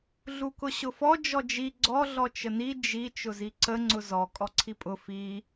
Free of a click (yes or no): no